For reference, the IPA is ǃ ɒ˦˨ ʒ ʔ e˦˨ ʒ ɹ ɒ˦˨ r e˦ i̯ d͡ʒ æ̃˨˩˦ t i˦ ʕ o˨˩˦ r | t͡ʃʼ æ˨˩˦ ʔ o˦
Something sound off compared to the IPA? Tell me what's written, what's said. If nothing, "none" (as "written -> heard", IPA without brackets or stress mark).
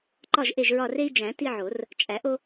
none